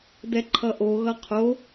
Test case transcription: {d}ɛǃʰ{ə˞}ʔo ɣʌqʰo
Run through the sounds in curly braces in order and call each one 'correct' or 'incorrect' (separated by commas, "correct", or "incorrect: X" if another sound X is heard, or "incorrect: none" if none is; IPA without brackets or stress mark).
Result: correct, incorrect: ʌ